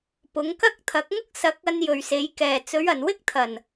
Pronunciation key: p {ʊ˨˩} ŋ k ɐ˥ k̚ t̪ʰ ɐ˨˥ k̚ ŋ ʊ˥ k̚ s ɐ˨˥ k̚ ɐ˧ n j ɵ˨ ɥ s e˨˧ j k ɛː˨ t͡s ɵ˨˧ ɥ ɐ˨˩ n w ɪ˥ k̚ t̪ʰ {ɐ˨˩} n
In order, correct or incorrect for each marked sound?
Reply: incorrect, correct

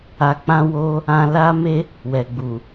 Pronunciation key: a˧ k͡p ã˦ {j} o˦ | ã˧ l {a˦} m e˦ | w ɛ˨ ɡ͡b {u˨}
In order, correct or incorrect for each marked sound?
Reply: incorrect, correct, correct

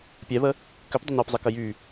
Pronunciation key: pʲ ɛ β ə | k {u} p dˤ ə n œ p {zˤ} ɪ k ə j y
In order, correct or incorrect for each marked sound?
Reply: incorrect, correct

